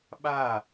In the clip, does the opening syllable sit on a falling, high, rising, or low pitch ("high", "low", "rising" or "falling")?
falling